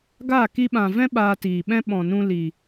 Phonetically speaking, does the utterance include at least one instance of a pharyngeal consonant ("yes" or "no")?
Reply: no